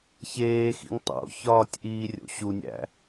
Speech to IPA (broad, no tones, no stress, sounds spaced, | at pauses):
ç eː x ḭ ŋ tˤ o̰ ç ɒː tʲ ʔ iː rʲ o̰ ɕ u nʲ æ̰